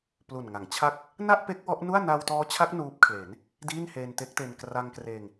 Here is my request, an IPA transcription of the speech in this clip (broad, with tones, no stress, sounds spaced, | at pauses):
p l u˨˩ n ŋ a˩˦ ŋ t͡ɕʰ a˥˩ k̚ | n a˥˩ ʔ p e˦˥ k̚ w ɔ˦˥ ʔ n u˥˩ a̯ n a˧ w t ɔː˦˥ t͡ɕʰ a˦˥ k̚ n uː˦˥ p̚ kʰ l e˩˦ n | d iː˥˩ n h eː˧ n t e˦˥ k̚ t e˧ n k r a˧ ŋ k r eː˧ ŋ